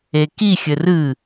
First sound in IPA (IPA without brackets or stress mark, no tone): e